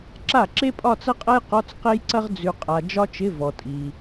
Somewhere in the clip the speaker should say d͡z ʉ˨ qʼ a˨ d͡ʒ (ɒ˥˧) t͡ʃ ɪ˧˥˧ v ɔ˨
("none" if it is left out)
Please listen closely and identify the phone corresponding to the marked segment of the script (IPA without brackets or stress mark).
ɒ˥